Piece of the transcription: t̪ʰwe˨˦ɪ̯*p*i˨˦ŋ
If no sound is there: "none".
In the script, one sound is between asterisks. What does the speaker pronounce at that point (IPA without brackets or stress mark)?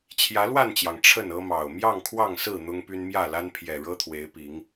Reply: p